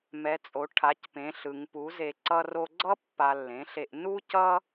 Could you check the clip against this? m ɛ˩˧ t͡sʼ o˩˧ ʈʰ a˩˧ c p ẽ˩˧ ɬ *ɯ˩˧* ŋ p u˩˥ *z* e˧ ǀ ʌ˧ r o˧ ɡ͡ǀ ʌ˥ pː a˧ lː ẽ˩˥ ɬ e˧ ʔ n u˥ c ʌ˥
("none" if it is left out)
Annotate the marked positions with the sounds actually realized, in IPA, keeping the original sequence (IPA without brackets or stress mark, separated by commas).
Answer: ɯ˩˧, z